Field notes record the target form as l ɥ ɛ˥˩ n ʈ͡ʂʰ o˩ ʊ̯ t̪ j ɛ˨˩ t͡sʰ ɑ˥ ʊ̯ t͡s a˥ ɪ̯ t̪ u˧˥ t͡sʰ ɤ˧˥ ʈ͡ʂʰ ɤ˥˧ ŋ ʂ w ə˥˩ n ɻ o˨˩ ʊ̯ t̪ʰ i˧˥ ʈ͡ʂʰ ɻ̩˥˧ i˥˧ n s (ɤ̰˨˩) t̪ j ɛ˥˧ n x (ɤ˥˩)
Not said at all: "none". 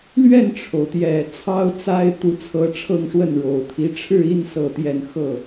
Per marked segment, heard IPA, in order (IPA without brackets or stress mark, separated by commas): ɤ˥˧, ɤ˥˩